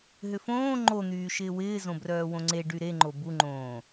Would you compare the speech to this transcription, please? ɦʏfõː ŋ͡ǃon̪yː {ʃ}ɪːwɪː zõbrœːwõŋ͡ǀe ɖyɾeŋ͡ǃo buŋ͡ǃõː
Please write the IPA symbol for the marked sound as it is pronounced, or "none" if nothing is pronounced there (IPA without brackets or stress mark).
ʃ